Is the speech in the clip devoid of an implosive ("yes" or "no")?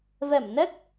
yes